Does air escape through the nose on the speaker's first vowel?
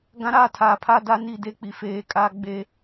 yes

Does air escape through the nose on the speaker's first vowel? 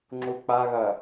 no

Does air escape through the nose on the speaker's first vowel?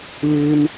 no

